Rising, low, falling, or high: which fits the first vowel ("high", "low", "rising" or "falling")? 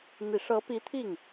low